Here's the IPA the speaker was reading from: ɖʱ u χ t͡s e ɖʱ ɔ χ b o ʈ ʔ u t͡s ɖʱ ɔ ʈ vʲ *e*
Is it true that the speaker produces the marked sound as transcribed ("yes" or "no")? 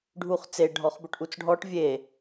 yes